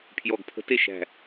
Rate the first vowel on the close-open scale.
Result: mid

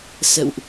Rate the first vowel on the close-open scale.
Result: mid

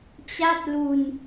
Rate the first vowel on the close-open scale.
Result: open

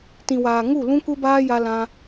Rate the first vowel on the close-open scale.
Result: close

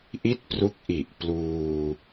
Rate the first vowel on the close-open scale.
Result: close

